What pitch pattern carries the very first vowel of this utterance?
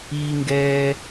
high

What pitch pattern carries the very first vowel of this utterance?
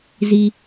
high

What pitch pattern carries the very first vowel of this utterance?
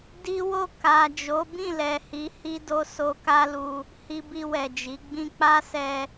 high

